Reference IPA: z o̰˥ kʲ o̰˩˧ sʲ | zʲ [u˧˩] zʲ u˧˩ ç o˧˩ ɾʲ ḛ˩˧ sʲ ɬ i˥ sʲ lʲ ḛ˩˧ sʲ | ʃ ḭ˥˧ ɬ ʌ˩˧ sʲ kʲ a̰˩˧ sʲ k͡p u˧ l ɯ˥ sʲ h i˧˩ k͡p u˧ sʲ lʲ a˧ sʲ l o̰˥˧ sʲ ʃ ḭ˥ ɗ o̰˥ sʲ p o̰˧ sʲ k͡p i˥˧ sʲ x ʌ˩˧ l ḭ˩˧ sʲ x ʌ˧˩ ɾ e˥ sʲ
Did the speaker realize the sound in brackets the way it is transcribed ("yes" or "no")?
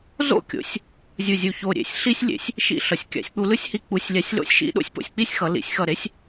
yes